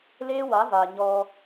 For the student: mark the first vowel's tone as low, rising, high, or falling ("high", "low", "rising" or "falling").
high